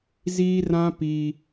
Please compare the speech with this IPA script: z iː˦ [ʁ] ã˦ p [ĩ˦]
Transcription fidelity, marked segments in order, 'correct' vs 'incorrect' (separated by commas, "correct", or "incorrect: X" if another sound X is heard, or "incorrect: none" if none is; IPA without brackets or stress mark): incorrect: r, incorrect: i˦